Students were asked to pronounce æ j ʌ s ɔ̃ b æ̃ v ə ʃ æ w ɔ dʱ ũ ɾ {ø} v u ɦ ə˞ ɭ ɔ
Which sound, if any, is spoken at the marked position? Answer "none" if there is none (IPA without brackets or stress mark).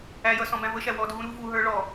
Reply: u